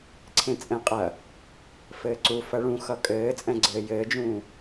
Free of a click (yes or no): no